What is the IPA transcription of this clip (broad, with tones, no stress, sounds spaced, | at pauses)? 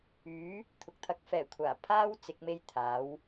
yː˨˥ | t̪ʰ ʊ˨ k̚ t̪ʰ ɐ˨˥ k̚ f ɛː˨˩ kʷʰ aː˨˩ pʰ aː˥ w t͡s ɪ˨˥ k̚ m e˥ j t̪ʰ aː˨˥ w